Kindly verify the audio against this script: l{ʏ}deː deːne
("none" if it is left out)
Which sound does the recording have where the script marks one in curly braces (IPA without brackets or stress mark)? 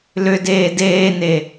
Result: ʏ